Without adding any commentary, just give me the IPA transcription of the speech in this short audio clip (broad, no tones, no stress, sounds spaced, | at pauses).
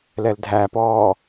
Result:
l ɛ l dʱ æ p ɔː